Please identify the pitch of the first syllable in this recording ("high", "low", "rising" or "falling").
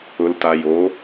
low